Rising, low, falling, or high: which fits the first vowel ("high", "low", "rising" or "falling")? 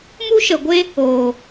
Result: high